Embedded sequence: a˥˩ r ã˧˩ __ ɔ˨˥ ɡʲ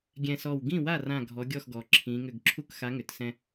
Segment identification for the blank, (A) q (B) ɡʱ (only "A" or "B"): B